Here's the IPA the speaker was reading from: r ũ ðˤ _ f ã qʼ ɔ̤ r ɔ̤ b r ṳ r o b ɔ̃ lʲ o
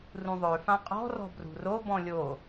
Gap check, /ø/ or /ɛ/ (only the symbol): ø